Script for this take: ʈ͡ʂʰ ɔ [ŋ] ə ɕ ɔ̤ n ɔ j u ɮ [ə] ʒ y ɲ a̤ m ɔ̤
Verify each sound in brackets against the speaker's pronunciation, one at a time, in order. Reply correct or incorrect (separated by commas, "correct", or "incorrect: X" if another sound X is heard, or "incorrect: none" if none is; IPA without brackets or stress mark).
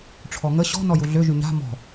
correct, incorrect: ø